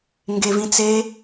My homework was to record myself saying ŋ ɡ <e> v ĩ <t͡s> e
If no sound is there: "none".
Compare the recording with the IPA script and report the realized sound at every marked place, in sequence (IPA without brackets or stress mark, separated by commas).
e, t͡s